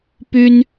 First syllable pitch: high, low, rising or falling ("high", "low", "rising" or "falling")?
high